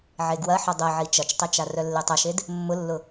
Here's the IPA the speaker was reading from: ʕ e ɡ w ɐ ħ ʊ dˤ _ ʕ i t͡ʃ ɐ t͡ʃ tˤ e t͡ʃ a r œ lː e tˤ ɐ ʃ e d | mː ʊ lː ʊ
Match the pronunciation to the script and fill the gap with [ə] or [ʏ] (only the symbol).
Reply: ə